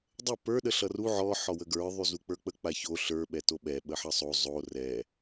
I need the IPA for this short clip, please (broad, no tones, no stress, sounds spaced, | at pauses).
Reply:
dˤ ə p ə˞ ɗ ə ɬ ʌ r u ʕ ɔ ħ ɔ w ə ɡ ə˞ ðˤ y z u k͡p ə˞ k͡p ə k͡p a ç o ɬ ə˞ ɓ ɛ t o ɓ ɛ ɓ ə ħ ʌ sˤ o zˤ o r ɛ